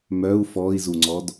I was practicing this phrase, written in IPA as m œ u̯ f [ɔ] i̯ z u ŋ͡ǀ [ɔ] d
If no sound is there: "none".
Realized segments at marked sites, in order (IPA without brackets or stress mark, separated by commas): ɔ, ɔ